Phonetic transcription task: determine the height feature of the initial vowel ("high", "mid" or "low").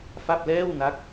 low